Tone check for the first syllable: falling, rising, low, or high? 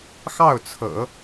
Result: falling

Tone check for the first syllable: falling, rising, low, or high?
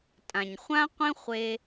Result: low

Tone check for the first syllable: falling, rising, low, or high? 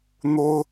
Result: high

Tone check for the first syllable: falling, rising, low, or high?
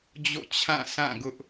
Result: falling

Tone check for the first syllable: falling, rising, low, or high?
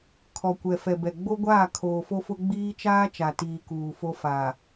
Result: low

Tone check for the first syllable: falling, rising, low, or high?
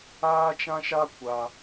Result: high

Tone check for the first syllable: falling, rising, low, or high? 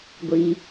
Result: low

